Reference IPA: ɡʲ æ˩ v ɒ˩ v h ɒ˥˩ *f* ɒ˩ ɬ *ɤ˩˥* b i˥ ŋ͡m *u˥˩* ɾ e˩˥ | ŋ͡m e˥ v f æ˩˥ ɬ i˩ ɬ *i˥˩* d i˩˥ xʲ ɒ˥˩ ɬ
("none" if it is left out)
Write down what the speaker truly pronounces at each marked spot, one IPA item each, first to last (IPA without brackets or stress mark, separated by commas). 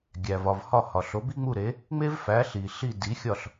h, o˩˥, u˥˩, i˥˩